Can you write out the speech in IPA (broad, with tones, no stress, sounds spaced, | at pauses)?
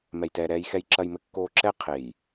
m ɛ˨ j t ɛː˨ ɾ ɛː˨ j x ɛ˨ j ǁ ɐ˨ j m ɘ˨ kː oː˨ ǁ ɛ˦ qʰ e˨ j